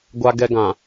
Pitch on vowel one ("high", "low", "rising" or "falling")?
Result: high